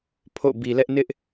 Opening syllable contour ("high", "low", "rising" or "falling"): falling